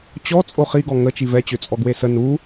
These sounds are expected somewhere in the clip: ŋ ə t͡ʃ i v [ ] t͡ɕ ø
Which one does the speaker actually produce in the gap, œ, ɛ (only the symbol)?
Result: ɛ